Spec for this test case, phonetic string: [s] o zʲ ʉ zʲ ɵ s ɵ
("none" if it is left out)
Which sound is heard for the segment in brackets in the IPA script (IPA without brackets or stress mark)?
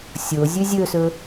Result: sʲ